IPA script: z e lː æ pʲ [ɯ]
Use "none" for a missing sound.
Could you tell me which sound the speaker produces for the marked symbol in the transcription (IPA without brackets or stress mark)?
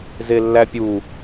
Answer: u